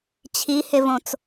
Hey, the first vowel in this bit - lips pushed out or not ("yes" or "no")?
no